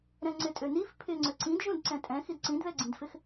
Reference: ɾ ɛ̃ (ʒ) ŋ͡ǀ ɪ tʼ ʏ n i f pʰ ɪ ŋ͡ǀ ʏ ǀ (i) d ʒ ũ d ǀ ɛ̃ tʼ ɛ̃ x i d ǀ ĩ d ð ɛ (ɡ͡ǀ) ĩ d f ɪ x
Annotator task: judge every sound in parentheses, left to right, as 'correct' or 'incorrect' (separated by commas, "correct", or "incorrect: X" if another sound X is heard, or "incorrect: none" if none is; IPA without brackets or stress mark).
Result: incorrect: none, incorrect: ĩ, correct